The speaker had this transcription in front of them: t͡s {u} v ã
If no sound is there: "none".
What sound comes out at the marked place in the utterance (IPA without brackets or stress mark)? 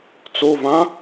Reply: o